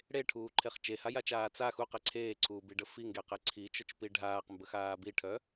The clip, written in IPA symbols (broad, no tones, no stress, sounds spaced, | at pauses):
ɽ e ʈʰ uː ǃʰ e χ t͡ʃ e h a j a t͡ʃ aː t͡s a x u q e ǀʰ eː ǀʰ uː b i ɖ ə f i ŋ ɡ e q e ǀʰ i t͡ʃ œ t͡ʃ p i ɖʱ aː q m b ə x aː b i ʈʰ œ